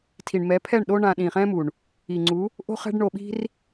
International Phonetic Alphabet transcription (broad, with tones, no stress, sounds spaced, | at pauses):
tʰ i˨ ɳ m ɛ˨˦ pʰ ɛ˦˨ ɳ ɗ o˦ ɳ ã˧ ɗ ĩː˨ χ ɛ̃ː˦ m u˨ ɳ | i˨ ŋ͡ǀ u˨˦ | ʔ o̤˦ χ ɛ̤˦ ɖ ɳ o˧ ɓ i̤˦ r